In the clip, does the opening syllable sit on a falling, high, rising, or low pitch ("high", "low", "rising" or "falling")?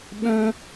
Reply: high